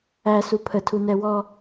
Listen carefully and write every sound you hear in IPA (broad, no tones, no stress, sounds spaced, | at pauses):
æ s u pʰ ə tʰ u n ɛ w ɔ